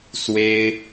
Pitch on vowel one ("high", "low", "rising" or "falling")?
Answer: high